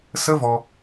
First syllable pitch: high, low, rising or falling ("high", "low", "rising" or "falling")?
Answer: high